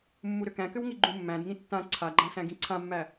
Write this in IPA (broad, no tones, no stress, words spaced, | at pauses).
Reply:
mːuɾʏkæ̃kʏw ŋiɡ͡ǃũmːæ̃dŋĩ tːã ǀʰaɡ͡ǃã sæ̃ɡĩǀʰãmːæ